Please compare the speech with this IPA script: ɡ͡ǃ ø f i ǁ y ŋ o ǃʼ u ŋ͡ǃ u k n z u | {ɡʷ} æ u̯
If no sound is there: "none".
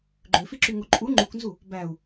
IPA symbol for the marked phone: b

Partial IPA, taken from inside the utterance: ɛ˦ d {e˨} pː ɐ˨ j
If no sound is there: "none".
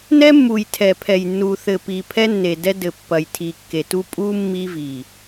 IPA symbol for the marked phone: ɘ˨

